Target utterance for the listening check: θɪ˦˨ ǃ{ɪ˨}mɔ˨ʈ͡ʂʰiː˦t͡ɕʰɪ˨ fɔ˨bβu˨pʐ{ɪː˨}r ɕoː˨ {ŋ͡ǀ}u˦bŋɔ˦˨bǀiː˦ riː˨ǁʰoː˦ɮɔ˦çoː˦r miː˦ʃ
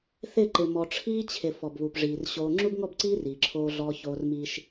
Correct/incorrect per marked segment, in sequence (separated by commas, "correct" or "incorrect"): correct, incorrect, incorrect